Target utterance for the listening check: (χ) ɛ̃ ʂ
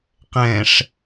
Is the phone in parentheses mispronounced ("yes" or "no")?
yes